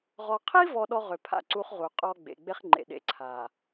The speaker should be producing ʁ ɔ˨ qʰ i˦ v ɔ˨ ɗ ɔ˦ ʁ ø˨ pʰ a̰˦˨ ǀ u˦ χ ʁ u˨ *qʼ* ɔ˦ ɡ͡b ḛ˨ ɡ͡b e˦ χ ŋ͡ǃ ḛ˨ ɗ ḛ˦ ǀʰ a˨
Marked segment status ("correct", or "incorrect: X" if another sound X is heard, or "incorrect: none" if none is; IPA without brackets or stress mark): correct